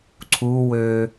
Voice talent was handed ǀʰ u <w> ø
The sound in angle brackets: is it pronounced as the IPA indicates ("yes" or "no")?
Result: yes